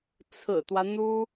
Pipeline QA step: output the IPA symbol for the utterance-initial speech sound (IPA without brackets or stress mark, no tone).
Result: t͡sʰ